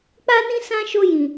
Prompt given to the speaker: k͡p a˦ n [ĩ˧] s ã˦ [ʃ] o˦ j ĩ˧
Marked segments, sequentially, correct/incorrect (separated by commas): incorrect, correct